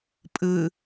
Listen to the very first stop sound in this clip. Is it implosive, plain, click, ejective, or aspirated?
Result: ejective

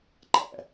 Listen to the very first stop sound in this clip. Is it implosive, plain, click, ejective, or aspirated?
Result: click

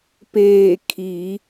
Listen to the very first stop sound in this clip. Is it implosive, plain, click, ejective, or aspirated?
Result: plain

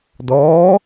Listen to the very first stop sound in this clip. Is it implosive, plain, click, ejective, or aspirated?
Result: plain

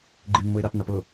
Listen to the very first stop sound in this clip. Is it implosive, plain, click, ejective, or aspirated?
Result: click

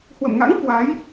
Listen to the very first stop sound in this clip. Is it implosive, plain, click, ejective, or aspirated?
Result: plain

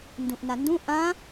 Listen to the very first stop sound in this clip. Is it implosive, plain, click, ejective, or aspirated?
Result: plain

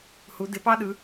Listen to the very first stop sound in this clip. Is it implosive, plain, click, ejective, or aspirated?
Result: plain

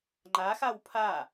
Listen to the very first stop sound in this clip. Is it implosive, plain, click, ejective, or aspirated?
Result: click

